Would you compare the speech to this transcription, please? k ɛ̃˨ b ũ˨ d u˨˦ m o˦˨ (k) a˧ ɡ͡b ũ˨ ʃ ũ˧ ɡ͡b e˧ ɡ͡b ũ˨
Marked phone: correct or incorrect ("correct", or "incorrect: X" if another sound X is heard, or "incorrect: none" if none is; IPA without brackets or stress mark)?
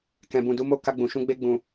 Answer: correct